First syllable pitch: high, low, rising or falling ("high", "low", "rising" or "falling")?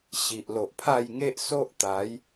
low